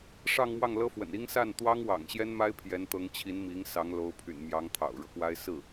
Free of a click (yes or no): yes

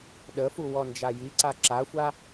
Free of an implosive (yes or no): no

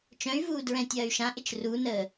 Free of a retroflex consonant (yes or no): yes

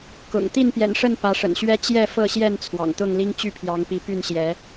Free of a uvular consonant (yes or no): yes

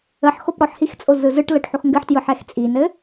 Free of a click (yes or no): yes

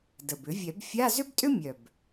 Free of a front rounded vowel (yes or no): no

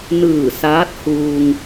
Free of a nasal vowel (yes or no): yes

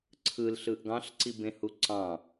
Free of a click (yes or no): no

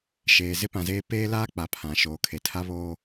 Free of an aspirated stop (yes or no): no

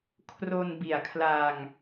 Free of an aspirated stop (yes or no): no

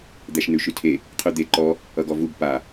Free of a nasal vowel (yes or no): yes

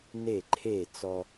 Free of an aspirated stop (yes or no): no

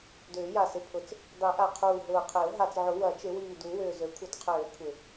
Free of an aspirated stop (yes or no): no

